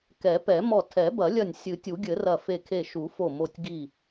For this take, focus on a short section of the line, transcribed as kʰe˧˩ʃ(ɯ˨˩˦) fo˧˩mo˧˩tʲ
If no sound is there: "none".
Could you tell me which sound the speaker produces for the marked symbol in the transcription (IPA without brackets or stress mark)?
u˨˩˦